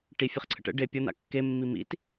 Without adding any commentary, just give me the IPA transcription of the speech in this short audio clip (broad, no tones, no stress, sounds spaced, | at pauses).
ʈ i fʲ ɛ χ ǀʰ ə̰ ʈ ə̰ ɖ e pʲ ʌ n̪ a̰ kː e mː i m ḭ t